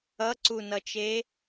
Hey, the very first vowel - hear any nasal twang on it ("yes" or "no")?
no